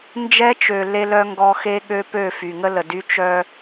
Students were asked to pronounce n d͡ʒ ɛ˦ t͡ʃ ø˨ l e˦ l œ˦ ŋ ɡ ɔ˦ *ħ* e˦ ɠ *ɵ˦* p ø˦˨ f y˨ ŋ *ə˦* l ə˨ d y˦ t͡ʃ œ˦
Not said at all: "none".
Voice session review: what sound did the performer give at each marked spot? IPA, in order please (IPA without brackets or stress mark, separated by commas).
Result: x, ø˦, ə˦